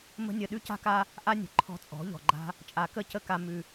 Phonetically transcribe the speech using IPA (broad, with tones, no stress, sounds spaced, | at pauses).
m ə̤˦ nʲ ə˧ ɗ ʉ˦ c a̤˦ k a˦ | ʔ a˦ nʲ ə̤˨ ǃʰ ɔ̤˧ t͡sʼ ɔ̤˨˦ ʎ ɔ̤˨ ɡ͡ǃ a̤˦ | t͡ʃʼ a˨ k ə˦˨ c ə˧ k a˨ m ʉ˨